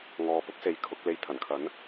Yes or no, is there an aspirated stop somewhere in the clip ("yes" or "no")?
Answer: yes